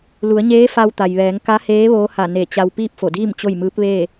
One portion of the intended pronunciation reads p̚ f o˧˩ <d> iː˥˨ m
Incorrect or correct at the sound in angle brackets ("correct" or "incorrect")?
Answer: correct